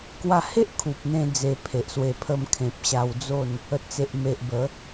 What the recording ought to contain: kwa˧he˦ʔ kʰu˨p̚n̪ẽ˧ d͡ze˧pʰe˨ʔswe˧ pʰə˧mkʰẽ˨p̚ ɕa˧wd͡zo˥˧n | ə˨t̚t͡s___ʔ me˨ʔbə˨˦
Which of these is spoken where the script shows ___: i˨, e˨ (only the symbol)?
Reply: e˨